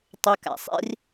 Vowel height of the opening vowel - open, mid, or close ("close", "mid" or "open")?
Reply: close